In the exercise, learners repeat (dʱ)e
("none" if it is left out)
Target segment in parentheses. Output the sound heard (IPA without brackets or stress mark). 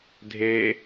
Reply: dʱ